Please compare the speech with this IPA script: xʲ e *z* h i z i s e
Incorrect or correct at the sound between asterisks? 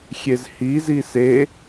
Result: correct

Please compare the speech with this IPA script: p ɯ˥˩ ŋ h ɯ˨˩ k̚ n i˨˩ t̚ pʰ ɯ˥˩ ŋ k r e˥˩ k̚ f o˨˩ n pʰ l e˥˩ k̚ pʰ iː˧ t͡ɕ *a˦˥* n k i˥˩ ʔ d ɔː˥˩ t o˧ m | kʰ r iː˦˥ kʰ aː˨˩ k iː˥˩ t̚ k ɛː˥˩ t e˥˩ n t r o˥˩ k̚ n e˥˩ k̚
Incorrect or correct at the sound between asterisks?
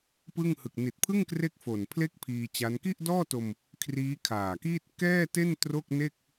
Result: correct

